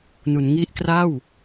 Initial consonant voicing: voiced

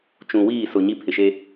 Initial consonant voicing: voiceless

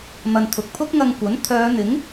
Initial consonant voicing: voiced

